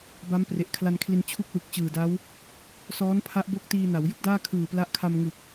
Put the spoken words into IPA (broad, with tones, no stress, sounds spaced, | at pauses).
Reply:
b a˦˥ m p r e˨˩ ʔ kʰ l a˧ n kʰ l i˧ n t͡ɕʰ u˥˩ k̚ w ɯ˨˩ k̚ t͡ɕ ɯː˨˩ d a˦˥ w | s ɔː˦˥ n pʰ a˦˥ ʔ b o˦˥ k̚ t iː˧ n a˩˦ w j ɯ˥˩ k̚ d aː˥˩ kʰ ɯː˨˩ p l a˦˥ ʔ kʰ a˧ m ŋ ɯ˨˩ k̚